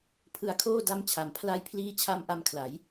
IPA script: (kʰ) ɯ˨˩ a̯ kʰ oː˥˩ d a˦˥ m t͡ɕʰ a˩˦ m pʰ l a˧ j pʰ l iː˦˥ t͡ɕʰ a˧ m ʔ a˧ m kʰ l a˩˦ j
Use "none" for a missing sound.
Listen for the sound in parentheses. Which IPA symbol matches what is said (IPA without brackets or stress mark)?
pʰ